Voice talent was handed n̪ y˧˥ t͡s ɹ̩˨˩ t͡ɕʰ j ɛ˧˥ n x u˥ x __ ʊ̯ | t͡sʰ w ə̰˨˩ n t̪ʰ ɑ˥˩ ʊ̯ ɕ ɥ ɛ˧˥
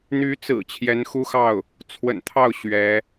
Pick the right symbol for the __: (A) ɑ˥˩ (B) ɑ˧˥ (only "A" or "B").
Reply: A